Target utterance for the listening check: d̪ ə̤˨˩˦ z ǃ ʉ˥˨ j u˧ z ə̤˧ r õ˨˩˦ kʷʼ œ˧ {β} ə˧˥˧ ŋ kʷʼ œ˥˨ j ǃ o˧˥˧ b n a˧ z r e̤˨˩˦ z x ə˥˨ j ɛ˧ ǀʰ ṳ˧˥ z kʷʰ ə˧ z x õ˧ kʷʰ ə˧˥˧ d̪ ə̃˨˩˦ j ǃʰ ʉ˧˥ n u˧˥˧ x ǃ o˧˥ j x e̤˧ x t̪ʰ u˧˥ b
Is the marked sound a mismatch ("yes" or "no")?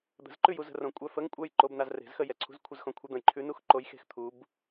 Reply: yes